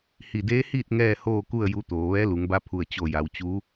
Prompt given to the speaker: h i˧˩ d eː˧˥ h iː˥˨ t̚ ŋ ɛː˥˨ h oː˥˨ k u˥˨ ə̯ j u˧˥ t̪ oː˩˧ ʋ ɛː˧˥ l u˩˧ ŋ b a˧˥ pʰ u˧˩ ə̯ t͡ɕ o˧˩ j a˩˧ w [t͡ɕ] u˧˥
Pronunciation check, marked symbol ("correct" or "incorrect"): correct